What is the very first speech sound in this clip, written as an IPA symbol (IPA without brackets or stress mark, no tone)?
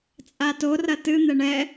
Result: t͡sʼ